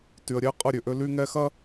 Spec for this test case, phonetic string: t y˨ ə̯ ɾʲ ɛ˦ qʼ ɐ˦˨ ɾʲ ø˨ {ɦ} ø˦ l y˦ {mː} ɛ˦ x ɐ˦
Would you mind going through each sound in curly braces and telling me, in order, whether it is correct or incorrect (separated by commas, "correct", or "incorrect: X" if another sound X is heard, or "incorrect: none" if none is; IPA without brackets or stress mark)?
incorrect: ʔ, incorrect: ŋ